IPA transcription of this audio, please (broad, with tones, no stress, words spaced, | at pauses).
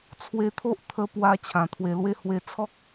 t͡sʰwe˧t̪ʰo˦ʔ t̪ʰə˧pwa˧ t͡ɕʰã˨˩t̪ʰwe˧lwe˥˧ hwe˧t͡sʰɔ˦k̚